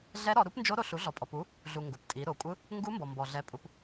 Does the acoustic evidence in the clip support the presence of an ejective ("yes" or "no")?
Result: yes